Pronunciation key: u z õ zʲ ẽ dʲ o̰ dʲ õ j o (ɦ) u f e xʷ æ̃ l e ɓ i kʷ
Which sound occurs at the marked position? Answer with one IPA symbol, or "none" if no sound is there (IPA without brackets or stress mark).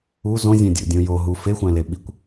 ɦ